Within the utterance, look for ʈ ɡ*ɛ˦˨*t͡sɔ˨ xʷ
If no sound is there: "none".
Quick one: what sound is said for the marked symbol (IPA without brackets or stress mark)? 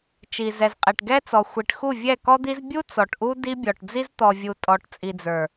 ɛ˦